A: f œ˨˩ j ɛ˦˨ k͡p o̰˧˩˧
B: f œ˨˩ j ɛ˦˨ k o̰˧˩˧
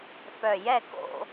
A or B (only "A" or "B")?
B